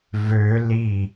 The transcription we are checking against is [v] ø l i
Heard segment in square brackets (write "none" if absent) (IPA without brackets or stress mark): v